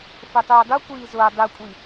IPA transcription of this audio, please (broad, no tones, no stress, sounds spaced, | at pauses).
f ʊ tˤ uː dˤ u kʷ iː z ʊː dˤ i kʷʼ i